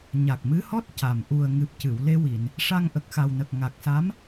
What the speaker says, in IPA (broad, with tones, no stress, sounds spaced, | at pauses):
ɲ a˨˩ k̚ m ɨ˧˥ h ɔ˦˥ t̚ c a˨˩ m ʔ u˨˩ ə̯ ŋ ɨ˨˩ p̚ c ɨ˨˩˨ w l e˧ w i˨˩˨ n | ʂ a˧ ŋ ʔ ə˨˩ k̚ x a˨˩ w n ə˨˩ k̚ ŋ a˨˩ k̚ s a˧˥ m